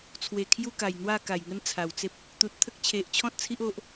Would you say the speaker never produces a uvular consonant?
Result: yes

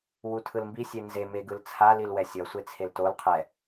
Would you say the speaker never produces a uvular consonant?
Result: no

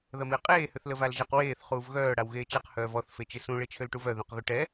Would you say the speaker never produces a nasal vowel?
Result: no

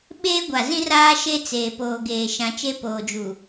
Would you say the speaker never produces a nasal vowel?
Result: no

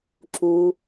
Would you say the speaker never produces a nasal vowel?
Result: yes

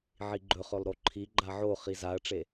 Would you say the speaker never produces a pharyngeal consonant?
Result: no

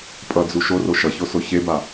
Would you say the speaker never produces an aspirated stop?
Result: yes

